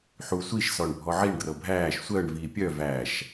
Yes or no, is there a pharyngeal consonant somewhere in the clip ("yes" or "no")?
yes